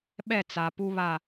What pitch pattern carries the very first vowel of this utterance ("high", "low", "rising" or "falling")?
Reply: falling